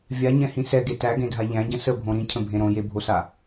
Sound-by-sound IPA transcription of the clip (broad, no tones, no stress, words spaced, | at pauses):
vʲaɲɛ̃hĩ sɛɡe tæɡẽdʱa ʎæ̃ɟə̃ səbʱõ ɾĩcʰə̃bʱẽ ɾõjebʱosa